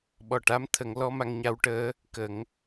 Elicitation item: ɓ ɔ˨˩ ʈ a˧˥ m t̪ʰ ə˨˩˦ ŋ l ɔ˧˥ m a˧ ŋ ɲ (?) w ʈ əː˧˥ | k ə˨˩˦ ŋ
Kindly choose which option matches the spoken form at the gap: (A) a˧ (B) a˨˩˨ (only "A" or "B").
A